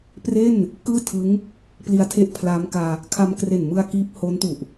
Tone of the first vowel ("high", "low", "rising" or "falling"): falling